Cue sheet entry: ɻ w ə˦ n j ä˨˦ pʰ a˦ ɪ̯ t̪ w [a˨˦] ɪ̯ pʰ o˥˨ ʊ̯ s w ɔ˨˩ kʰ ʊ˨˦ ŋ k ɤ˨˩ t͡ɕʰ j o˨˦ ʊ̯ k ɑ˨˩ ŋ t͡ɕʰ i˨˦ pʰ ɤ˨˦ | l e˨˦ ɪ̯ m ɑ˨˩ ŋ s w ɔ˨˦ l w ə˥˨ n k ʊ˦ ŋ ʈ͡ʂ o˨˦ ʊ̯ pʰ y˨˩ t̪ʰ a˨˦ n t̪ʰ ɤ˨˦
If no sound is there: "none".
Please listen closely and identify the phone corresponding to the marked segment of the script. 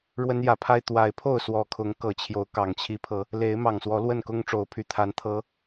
a˨˦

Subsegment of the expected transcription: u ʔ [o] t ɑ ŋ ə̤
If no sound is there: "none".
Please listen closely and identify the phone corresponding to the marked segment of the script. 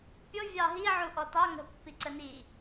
ɔ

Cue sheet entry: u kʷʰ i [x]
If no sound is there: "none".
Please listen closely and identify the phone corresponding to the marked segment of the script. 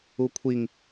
ŋ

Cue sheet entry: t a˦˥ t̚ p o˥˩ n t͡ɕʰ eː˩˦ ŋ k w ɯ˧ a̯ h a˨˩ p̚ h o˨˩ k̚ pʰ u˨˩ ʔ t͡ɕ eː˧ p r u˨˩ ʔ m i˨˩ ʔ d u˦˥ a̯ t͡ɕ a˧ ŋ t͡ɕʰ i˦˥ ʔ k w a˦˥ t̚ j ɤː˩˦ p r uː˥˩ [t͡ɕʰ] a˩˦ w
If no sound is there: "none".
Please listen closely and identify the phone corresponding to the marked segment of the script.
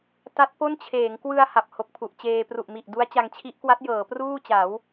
t͡ɕ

